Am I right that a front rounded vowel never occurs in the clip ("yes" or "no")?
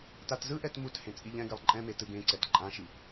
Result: yes